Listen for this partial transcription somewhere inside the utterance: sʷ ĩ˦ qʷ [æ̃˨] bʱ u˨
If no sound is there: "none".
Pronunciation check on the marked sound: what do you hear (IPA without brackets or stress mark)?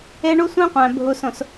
æ̃˨